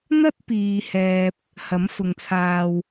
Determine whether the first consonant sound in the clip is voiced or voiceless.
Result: voiced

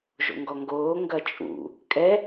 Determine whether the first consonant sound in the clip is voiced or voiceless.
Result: voiced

